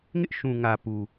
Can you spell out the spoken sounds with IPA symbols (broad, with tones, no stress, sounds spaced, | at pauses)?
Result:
ŋ ɪ˦ ʔ ʃ ũ˨ ŋ ä˨ p u˨